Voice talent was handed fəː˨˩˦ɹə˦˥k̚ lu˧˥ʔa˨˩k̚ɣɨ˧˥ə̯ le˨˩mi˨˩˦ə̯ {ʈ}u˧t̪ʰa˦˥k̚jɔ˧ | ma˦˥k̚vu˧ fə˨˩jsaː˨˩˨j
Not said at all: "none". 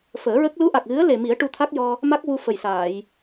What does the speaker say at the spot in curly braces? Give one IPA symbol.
ʈ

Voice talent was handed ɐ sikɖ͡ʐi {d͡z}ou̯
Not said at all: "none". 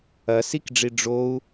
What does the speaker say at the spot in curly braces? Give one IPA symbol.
ɖ͡ʐ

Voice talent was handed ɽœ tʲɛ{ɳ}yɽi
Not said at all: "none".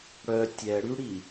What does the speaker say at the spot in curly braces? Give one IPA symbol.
ɽ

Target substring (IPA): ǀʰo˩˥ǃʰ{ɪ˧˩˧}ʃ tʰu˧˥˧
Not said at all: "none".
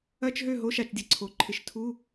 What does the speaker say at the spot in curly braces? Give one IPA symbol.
ɪ˧˩˧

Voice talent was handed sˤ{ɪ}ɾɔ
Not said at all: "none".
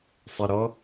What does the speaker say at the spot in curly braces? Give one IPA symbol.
ɪ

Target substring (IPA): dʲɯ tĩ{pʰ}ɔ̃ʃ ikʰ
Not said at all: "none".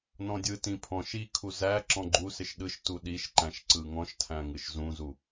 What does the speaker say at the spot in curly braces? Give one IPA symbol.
pʰ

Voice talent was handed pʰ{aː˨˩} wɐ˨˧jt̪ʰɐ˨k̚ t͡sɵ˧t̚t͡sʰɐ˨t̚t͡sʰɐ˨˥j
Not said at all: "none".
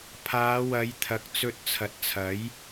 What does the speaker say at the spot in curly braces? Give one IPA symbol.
aː˨˧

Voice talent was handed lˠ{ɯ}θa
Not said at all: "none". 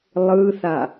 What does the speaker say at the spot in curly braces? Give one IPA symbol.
ɯ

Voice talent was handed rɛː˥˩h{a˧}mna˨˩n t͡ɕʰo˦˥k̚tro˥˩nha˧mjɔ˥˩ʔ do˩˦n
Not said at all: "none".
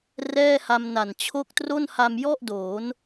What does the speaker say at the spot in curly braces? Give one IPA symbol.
a˧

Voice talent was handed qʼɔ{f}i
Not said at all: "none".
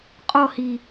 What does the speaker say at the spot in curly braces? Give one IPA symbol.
h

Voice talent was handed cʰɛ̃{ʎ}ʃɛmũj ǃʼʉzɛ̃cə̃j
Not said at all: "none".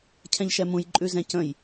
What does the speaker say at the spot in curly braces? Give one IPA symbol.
ʎ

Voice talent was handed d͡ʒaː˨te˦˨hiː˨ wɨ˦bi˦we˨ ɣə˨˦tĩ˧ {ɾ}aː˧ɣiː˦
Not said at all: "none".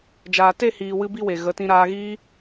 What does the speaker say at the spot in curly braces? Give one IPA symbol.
ɾ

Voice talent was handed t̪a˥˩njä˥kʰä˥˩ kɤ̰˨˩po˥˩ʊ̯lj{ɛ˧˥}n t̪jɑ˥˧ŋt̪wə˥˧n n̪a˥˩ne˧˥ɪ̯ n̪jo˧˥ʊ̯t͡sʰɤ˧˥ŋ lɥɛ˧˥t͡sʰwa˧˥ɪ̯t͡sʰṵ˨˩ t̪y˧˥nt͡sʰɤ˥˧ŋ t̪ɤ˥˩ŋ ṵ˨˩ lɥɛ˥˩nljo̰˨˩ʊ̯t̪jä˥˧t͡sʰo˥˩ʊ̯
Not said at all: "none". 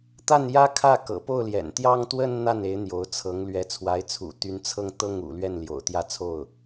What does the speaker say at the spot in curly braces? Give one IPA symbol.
ɛ̰˨˩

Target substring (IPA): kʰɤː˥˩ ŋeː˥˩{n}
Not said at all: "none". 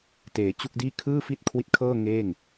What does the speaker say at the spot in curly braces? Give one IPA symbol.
ŋ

